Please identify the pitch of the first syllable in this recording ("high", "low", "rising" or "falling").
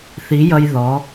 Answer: rising